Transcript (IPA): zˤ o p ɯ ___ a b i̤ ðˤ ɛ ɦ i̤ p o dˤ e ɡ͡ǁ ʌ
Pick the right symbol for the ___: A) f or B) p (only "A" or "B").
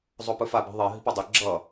A